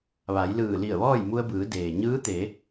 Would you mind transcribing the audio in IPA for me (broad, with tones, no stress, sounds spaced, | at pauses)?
ʋ a˩˧ j l ɯː˧˩ l i˧˩ ə̯ ʋ ɔː˥˨ j m u˧ ə̯ b ɯː˩˧ d eː˩ ɲ ɯː˧˥ t̪ e˩˧